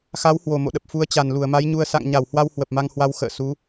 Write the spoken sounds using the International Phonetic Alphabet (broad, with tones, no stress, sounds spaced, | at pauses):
x a˨˦ w h w o˨˩ m o̰˧˨ ɗ ə˨˩ p̚ f u˨˦ ə̯ t͡ɕ a˨˩ n l u˧˩ ə̯ m a˨˦ j ɲ u˧ ə̯ s a̰˧˨ ŋ ɲ a˧˩ w h w a˧ w h w ə˨˩ p̚ m a˧ ŋ h w a˧ w x ə̰ː˧˨ s u˨˦